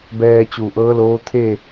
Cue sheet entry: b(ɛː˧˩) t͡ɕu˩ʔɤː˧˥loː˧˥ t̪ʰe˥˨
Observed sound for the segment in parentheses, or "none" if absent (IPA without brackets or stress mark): ɛː˧